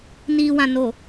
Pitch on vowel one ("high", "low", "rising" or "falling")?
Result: low